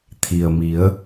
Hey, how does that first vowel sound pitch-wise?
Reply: low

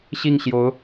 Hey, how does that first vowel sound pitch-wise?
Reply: falling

